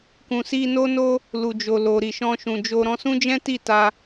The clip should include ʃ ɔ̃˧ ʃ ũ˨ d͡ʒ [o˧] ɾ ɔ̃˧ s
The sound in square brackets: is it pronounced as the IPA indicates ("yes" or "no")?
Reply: yes